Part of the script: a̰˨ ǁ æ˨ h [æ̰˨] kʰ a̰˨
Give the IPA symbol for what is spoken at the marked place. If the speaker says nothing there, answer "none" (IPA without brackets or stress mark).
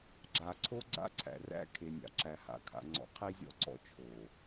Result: a̰˨